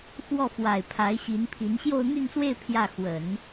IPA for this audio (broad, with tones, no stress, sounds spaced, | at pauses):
x w ɔ˥˩ f w a˨˩ ɪ̯ pʰ a˧˥ ɪ̯ ɕ i˧˥ n pʰ i˧˥ n ɕ j o˥˧ ʊ̯ n̪ y˥˧ n s w e˥˧ ɪ̯ pʰ j ä˥˩ x w ə˨˩˦ n